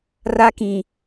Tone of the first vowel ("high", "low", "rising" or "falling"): high